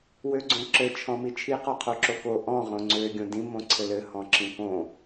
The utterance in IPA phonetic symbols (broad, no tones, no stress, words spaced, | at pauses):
wøɡ͡ǀõǁɘ t͡ʃʰɔ̃mit͡ʃʰi qɔqʰoǁoko ʔɔ̃ ʁõŋ͡ǀø ɡʲõdĩ mõǀʰɘlɘ hɔ̃ǁĩkõ